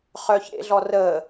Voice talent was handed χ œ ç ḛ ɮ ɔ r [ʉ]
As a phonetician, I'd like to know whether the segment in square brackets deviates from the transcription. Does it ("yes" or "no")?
yes